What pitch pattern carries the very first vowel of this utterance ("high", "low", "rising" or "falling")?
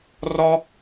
high